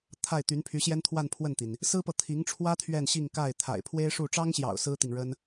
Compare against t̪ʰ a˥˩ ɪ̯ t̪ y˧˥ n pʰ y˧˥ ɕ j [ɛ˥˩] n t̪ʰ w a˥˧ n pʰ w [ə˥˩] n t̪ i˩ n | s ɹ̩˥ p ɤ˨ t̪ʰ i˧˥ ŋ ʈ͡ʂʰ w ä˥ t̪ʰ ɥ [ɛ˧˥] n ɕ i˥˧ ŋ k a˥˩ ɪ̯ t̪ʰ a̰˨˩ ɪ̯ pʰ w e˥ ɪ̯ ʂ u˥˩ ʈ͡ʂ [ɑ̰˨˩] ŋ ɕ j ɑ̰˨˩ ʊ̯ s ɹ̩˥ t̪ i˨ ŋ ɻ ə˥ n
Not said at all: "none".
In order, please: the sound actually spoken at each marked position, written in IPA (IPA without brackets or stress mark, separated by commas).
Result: ɛ˥, ə˥˩, ɛ˥˧, ɑ˥